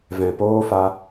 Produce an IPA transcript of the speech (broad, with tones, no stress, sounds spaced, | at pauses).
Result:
v ɛ̃˨ p oː˦ f a˧